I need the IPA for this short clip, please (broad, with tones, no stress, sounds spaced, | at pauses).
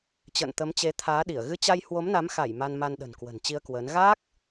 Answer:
t͡ɕ ə̰ː˧˨ n t̪ ə˨˦ m t͡ɕ e˨˦ t̪ʰ aː˨˦ ɗ i˧˩ ə̯ ɣ ɨ˧ t͡ɕ a˧ j h w o˨˦ m n a˨˦ m x a˧˩ j m a˧ n m a˧ n ɗ ə̤˨˩ n k w ə̤˨˩ n t͡ɕ i˧ ə̯ k w əː˨˦ n ɣ aː˦˥ k̚